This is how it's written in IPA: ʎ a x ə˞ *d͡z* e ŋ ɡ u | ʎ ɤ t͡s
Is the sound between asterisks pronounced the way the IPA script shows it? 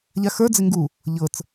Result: yes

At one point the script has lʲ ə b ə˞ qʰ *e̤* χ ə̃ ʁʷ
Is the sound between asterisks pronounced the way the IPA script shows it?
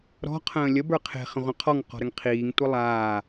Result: yes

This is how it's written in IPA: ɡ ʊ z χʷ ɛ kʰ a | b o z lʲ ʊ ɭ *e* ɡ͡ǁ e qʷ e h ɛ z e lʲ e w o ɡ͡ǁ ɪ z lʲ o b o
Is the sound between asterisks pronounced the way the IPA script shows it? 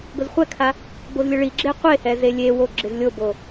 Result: no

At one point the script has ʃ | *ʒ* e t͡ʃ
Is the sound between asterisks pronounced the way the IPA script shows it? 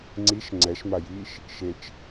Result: no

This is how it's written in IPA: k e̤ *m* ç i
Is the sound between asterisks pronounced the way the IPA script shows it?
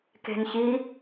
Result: no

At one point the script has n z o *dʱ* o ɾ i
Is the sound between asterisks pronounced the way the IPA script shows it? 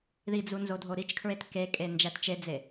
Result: yes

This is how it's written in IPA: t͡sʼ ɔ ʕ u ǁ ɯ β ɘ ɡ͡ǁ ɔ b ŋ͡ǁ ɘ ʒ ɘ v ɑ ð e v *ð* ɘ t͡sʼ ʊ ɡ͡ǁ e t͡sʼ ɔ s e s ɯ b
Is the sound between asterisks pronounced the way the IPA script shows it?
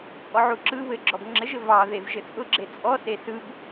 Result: no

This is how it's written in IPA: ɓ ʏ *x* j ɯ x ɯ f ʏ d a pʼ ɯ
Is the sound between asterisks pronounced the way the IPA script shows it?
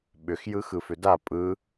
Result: yes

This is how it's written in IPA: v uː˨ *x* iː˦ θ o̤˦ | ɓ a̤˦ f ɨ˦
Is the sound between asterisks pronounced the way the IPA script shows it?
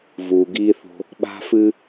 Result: no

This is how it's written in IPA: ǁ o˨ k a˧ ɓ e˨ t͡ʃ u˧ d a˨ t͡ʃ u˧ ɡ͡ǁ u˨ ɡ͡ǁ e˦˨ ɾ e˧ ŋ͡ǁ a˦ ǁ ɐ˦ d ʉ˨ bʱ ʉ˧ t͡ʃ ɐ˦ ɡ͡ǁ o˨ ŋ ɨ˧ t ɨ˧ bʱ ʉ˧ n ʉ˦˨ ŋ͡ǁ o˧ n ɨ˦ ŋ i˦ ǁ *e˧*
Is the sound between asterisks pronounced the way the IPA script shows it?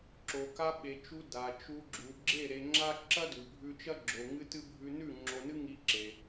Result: yes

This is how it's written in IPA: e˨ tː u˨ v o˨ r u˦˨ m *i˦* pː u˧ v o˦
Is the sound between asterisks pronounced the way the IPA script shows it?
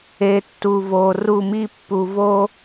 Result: yes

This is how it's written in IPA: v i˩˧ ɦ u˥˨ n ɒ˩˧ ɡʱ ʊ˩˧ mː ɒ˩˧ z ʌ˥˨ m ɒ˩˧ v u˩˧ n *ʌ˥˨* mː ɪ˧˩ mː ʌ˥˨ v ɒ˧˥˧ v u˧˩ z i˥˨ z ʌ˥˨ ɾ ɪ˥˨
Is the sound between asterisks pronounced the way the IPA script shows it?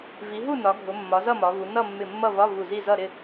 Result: yes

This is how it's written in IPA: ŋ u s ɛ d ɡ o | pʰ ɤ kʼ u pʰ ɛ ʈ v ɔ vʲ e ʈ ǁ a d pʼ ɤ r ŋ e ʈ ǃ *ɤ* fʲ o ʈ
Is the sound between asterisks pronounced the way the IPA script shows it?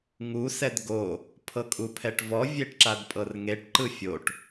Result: no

